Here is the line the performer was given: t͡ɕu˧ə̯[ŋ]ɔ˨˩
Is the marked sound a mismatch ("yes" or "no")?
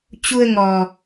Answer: no